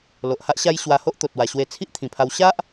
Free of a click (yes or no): yes